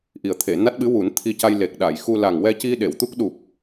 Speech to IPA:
ʔ i˨˩ ə̯ t̪ʰ e˨˩˨ n a˦˥ t̚ ɓ ɨ˧˥ w u˨˩˦ n t̪ʰ i˧ c a˧ j l e˨˩ k̚ ɗ a˨˩˨ j x u˧ l a˨˩ ŋ w ɛ˧ c i˧ ɗ e˨˩˨ w t̪ u˦˥ k̚ ɗ u˨˩ p̚

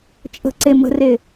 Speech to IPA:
t͡ʃʼ ə̤ ǀ e m ə̤ r e

